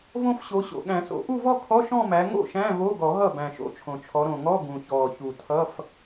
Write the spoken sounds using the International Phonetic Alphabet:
võ˥˧fɕo˨˦ ɕo̰˨˩ɠæ̃˨˩˦so̰˨˩˦ ʔu˥˧vɔ˥˧kʰɔ˧˥˧ ʃɔ̃˥˧mæ˨˦ ŋo̰˥˩ʃæ̃˧˥˧ vo˧˥˧ɡɔ˨˩˦ɦʌ˥˩ bæ̃˨˩ʃo̰˨˦t͡ʃʰõ˨˩t͡ʃʰɔ˨˦ ɾõ˨˩ŋɔ˧˥˧ ɡũ˨˩çɔː˨˩ çu˨˩tʰʌ˧˥˧f

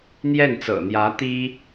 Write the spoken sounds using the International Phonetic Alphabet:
n̪jɛ˥˩nt͡sɤ̰˨˩n̪jä˧˥ t̪i˥

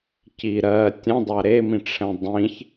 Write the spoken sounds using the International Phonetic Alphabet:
ci ɾɜ tʲə̃dˤa ɾemĩʈ͡ʂʰɛ̃ dˤĩç

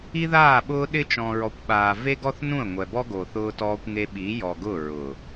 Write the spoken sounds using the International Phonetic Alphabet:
i˦ðaː˦˨ɓʊː˦ ɗɪ˦ t͡ʃɔ̃˨ɹɔ˨kʷɓaː˨ ve˦ɡɔ˦θnũ˦˨ə̯ ŋʷɛ˨bɔ˦ ɡo˨ θʊː˦tɔː˦kʷŋe˦ ɓi˨˦jɔ˨ɡʊ˦˨ ɹʊ˨

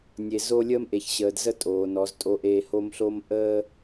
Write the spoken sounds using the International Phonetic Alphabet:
nʲe˨ zo˦ lʲəː˦mʔe˨ç ɕəː˨dzə˦ tʼoː˨nɔ˨˦ztʼo˦ʔeː˦ ho˦mɬo˦m ʔəː˦

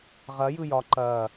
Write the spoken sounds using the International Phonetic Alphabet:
ʁɐ jɯjɒ ǃɐː

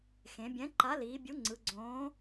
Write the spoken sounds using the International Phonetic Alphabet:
xẽ˩˧bʲɛ̃˨˥ ǃa˨˥liː˩˧bʲu˨˥ ŋ͡ǀɯ˩˧ ɡ͡ǀõː˨˥

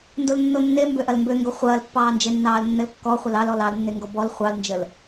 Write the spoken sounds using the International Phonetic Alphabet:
ndolnːonːe mbøʔɐlmbøŋɡo χʷɐːlpːɑːnd͡ʒenːɑːl nːɘlkːɔ χʷəlɑlɔl ɑlnːeŋɡɔ bɔl χʷɑlnd͡ʒəl

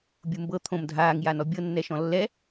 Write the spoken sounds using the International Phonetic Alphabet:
bʲumbɤ t̪ʰõm dʱaːŋ janɔbʲɤ nːɛʃɔ̃lːɛ

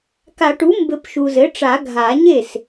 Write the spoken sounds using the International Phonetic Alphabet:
ka˨˩˦ʈu˩˥ mbɘ˨˩˦p ʃu˨zɘ˩˥ʈ͡ʂa˨˩˦ ɡʱa˨˩˦ɲe˥˩s

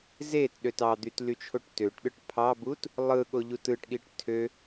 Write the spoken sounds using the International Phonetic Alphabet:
zetɗøt ɑd̪yt lyt͡ʃʰoʈtøʈɗɯʈ pʰɑbut | lˠɯɠo ʎutɯʈɠiʈ tʰø

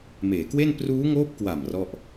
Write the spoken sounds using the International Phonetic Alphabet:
meː˩˦kwe˥˩n pruː˦˥ŋoː˦˥p̚kwa˨˩m rɔ˥˩ʔ

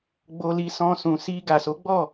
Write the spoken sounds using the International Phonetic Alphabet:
ɡ͡bo˧li˧sɔ̃˧sũ˨ si˧ɡa˨so˨˦ ɡ͡bɔ˦˨

